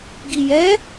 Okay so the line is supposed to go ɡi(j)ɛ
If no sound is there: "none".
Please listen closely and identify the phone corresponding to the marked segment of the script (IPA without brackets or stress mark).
j